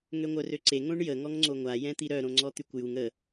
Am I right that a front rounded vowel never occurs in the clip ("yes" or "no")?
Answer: no